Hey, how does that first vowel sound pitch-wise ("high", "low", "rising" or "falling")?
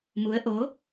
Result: rising